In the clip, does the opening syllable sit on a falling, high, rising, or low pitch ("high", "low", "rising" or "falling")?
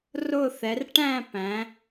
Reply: falling